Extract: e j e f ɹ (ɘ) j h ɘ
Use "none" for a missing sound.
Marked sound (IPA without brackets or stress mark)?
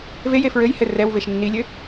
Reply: ɘ